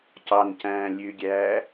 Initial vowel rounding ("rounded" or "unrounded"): unrounded